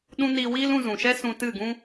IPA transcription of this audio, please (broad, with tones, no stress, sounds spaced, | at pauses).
ɗ ũ˦ n iː˧ w iː˦ l ũ˧ z ũ˨ ʃ ɛ˦ s ũ˧ t ɨ˦˨ ɡ ũ˦